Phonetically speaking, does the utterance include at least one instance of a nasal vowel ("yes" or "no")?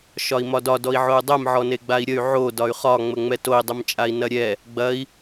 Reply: no